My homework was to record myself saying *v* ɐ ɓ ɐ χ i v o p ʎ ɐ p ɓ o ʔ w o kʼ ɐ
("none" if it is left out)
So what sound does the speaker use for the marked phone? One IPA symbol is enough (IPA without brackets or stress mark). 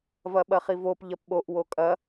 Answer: v